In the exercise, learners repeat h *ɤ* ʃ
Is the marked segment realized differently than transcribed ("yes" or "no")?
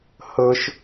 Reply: no